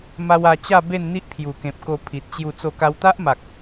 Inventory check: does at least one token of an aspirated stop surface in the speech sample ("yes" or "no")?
yes